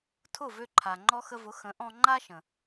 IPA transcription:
tʰʊ˥˩ vø˧ǃʰa˩ŋ͡ǃɔ˧ xə˧vʊ˩˥ xə̃˩˥ʔɔ̃˧ ŋ͡ǃa˥ʃə̃˩

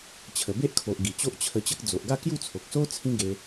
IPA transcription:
t͡ɕʰə˨˩be˦ʔkʰo˨ʔ ɡi˨˩t͡ɕo˦ʔt͡ɕʰə˧t͡ɕə˦k̚ d͡zo˨ʔɡa˥˧kju˥˧t͡sʰo˨k̚ so˦ t͡sʰĩ˦ɡe˧

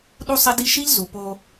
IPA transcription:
ɗu˦sˤe˦di˦ ʃi˦ʎ zu˨po˦

